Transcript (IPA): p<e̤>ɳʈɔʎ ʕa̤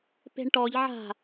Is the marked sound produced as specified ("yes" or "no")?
yes